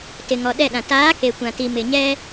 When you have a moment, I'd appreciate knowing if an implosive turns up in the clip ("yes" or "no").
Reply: yes